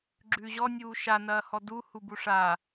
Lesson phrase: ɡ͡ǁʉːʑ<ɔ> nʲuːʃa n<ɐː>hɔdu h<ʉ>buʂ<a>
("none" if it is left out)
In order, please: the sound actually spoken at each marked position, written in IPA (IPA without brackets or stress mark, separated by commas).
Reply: ɔ, ɐː, u, a